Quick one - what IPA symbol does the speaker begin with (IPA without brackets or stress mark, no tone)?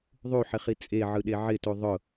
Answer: ðˤ